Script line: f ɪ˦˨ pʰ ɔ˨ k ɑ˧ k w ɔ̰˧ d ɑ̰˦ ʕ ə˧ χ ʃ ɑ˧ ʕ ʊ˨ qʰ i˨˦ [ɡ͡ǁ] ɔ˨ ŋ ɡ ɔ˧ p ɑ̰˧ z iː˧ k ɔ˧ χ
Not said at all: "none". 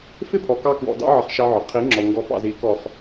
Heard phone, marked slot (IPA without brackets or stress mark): ŋ͡ǁ